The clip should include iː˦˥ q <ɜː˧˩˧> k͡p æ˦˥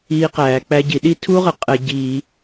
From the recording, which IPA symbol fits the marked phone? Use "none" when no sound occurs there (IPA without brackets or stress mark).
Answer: æː˧˩˧